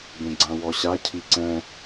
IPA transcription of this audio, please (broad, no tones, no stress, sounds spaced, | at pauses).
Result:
b ẽ ɡ͡ǀ ã w ɔ ɕ a cʰ i ǀ ɛ̃